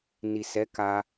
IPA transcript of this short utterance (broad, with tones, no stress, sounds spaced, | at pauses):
n i˨ s ɛ˨˦ k a˧